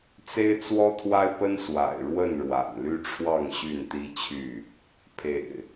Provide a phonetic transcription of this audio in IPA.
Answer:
t͡se˦ɪ̯t͡swɔ˦t̪ʰwa˦ɪ̯pə˦n swa̰˨˩ɪ̯ɻwə˥˨n ɻwa̰˨˩nly˦ʈ͡ʂʰwɑ˥˨ŋ ɕy˥˨nt̪i˦t͡ɕʰy˥˨ | pʰḛ˨˩ɪ̯

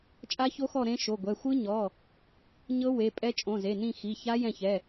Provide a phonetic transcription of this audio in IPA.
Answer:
t͡ʃʼa˦˥ço˦˥xɔ˦˨ ɾẽ˦˥ʃo˩˧˩ɡʷɛ˩˧˩ xʷɯ˦˥ɲɔ˩˧˩ | ɲɤ˦˥ we˩˧˩pʼɛ˦˥ t͡ʃʼõ˩˧˩ze˩˧˩nĩ˦˨xi˩˧˩ ça˦˥jɛ̃˦˨çɛ˩˧˩

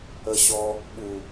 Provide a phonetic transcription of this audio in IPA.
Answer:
əɕɔ | ɓu

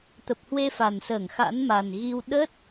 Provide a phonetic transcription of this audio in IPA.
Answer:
t̪ə˨˩p̚ hwe˧fa˨˩nsəː˧˩ŋ xa̰˧˥nma˨˩nɣi˧w ɗə˦˥t̚

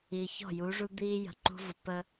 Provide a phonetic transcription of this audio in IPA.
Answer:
i˨çɔ̤˦˨ju˨˦ʐu˦ d̪iː˦jə̤˨ǃṳ˦vʊ˨ pə˦

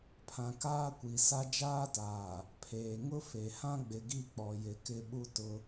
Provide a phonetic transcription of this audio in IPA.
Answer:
pʰã˨kaː˦ kʷi˨sa˦ d͡ʒaː˦taː˨ | pʰeː˨ ŋʊ˦fe˨hã˦ ɡ͡bɪ˨ɡi˦˨ k͡pɔ˨jɪ˨˦kɪ˦ ɓu˦ tʊ˦

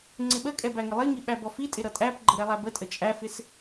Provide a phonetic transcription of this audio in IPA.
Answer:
ŋ͡ǀɪɓəkʼɛ bæŋɪlˠiŋi ɓæbɔfitʼɪ ɾʌtʼæpɡ͡ǃə ɾɛlˠæbətʼə t͡ʃʼæfɪs

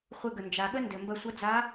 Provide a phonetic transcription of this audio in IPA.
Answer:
χʷɘ˧ɡə˩ nd͡ʒa˩ɠə˥ndɘ˩ mbɐ˧sʷʌ˧˥d͡za˧˥

